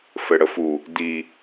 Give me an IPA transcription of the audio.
f ɘ ɽ ə f u | d i

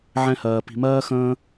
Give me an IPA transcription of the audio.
ʕ ɛ̃˦ h ɜː˧ p i̤˧ m ɜː˦ x ə̃ː˦

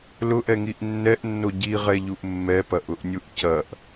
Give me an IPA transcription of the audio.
l ʊ ʔ ɛ ŋ i ʔ nː ɛ ʔ nː o ɟ i ʁ ɛ ʎ u ʔ mː ɛ p ɐ ʔ ʊ ʔ nʲ u ʔ c ɐ ʔ

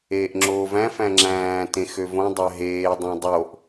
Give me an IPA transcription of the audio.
eː ʔ ŋ͡ǁ oː v æ̃ f æ̃ ŋ͡ǁ æ̃ː t ẽ x ø v õ dˤ æ ɦ eː dˤ ɑ̃ dˤ o ʔ

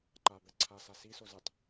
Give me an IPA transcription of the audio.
ǃ a b ɛ ǀʰ a s a s i s o z ɨ tˤ

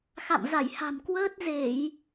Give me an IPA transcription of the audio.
x a̰˧˨ m z a˧˩ j h a̤˨˩ m k w əː˦˥ t̚ z e˧˩˨ j

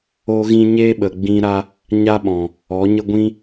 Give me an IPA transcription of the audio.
o˦ ɣ ĩ˦ ɲ eː˦ ɓ ə˨ ɡ͡b ĩ˧ ɾ a˧ | ɲ a˦ ɓ ɔ̃˨ | ɔ˨˦ ɲ ə˦ ɡʷ ĩ˦

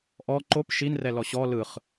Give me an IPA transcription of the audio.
ʔ ɔ ǃ o p ʃ i n r ɛ l ɔ ɕ ɔ l ɯ χ

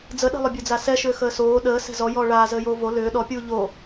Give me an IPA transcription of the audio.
d͡z ə ɗ ɛ̤ lˠ ʏ bʲ ə˞ d͡z a s ɛ ʃ ʏː x əː s oː ɗ əː s ɛ̤ z ɔ j ɔː ɭ aː z əː j oː v o l ʏː ɗ ɔ pʲ uː ʎ o

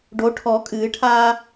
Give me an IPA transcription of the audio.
ɖ o ʈʰ ɔ kʼ ɨː ʈʰ aː

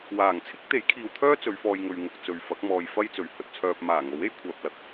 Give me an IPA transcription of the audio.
w aː˨˩ ŋ t͡sʰ ɪ˥ k̚ t̪ e˨˥ j kʰ iː˨ w t̪ʰ œː˥ t͡s ɵ˨˧ ɥ f ɔː˧ j ŋ ɵ˨ ɥ ŋ ʊ˨ k̚ t͡s ɵ˨ ɥ f ɐ˨˥ k̚ m ɔː˧ j f ɐ˥ j t͡s ɵ˨ ɥ h ɵ˨ t̚ t͡sʰ œː˧ p̚ m aː˨˩ ŋ o˨˥ w e˥ j kʷʰ œː˨ p̚ l ɐ˨ k̚

